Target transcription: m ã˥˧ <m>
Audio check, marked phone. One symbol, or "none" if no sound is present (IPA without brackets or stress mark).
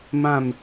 m